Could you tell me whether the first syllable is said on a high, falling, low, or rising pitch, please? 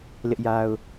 high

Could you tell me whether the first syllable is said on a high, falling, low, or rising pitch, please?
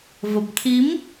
low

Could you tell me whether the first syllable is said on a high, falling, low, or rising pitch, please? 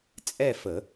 falling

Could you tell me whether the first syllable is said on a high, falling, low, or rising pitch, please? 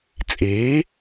rising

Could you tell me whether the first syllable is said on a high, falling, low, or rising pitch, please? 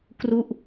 falling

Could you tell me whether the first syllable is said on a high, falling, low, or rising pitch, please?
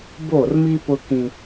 falling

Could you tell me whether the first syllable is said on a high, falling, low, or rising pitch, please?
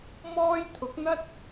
high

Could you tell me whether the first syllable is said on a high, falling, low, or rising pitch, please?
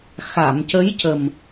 low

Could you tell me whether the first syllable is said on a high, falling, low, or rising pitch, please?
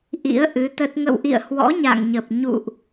rising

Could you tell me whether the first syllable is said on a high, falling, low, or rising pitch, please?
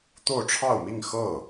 falling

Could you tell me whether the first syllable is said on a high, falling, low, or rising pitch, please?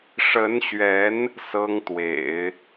rising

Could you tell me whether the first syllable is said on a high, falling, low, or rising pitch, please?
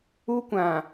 high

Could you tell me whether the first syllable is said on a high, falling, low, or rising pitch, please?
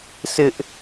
high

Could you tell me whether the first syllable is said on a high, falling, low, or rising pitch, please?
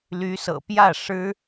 rising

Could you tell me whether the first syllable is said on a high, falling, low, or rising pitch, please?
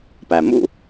low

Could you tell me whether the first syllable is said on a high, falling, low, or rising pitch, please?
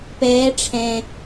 rising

